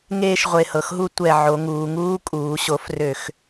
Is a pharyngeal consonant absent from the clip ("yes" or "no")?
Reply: no